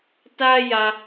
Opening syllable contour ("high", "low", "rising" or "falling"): high